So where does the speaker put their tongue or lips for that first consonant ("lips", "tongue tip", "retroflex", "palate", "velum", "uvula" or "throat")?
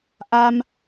throat